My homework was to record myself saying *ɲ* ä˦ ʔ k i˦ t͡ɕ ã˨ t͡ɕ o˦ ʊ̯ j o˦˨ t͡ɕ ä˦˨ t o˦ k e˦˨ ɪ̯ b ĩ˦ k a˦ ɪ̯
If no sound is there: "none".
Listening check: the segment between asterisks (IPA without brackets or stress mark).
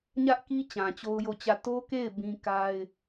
ɲ